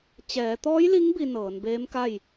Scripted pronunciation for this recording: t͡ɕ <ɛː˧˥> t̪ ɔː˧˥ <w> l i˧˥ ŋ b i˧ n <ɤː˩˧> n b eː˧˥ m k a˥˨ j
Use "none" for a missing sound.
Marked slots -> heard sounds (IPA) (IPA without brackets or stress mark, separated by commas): ɛː˩˧, j, ɤː˩˧